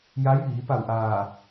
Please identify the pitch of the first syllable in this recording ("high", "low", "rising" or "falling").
rising